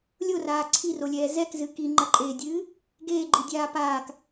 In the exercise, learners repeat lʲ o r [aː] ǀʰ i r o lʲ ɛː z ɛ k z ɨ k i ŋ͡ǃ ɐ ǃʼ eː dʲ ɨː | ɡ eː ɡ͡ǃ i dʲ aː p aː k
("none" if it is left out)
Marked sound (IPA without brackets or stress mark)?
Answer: aː